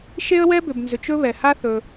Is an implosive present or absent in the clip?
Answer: absent